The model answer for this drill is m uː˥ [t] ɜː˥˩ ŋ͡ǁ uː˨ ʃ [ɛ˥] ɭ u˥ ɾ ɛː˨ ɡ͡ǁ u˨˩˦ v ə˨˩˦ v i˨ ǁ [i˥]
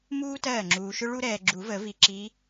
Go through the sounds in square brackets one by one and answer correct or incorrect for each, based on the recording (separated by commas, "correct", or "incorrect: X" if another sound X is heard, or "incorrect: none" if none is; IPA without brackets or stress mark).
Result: correct, incorrect: ʏ˥, incorrect: i˨˦